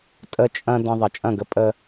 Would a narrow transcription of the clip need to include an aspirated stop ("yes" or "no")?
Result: no